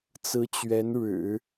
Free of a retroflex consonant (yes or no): no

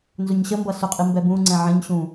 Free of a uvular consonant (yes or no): no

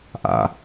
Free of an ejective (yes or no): yes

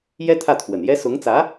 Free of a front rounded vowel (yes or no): yes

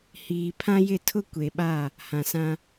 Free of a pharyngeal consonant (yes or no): yes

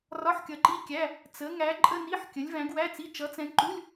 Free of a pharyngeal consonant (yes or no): no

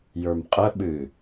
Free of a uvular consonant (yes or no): no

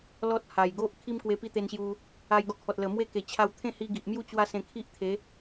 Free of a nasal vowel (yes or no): no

